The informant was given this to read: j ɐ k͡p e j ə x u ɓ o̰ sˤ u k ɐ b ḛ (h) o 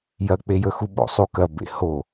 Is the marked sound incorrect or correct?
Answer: correct